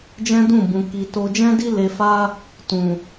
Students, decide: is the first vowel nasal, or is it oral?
nasal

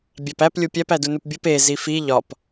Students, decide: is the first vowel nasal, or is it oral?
oral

